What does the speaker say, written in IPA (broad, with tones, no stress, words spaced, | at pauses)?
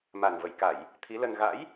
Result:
ma˨˩nvə˧˩jka˧˩˨j | t̪ʰi˨˦lə˧n ɣa̰˧˥j